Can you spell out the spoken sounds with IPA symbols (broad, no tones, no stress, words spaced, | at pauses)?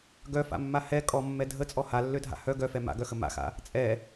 ɡœfa̰mːa hɛ kʼɔmːɛ dʱət͡sʼɔ halːødʱa̰ hœ ɡœfɛ ma̰ɡœxə ma̰xa̰ | t͡sʼɛ